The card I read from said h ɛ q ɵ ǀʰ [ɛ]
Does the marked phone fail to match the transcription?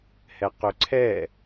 no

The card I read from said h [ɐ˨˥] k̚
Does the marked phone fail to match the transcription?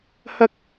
yes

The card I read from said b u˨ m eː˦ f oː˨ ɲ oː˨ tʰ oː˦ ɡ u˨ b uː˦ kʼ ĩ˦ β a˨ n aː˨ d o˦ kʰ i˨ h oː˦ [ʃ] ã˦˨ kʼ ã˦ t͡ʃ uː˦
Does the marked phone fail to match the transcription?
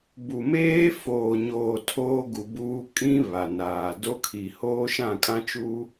no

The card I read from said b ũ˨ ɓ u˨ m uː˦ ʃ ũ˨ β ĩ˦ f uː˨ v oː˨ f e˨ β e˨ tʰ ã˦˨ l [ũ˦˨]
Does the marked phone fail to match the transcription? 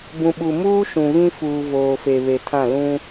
yes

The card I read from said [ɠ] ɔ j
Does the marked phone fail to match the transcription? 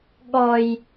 no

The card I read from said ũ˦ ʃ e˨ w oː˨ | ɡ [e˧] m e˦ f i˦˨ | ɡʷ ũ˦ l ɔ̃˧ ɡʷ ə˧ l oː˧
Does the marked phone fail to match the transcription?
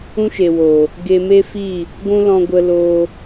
no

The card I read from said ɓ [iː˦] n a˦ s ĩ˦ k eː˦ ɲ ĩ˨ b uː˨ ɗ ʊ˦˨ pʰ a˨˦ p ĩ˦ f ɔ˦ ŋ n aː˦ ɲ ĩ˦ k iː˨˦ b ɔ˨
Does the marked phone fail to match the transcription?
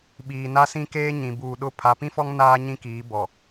yes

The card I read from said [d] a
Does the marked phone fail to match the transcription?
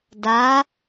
no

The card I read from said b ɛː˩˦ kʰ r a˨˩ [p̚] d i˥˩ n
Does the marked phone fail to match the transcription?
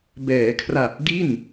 no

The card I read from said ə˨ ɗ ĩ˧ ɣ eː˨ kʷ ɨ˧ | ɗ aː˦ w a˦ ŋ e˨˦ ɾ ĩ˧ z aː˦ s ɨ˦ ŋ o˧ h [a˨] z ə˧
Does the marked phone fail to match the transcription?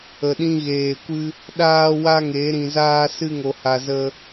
yes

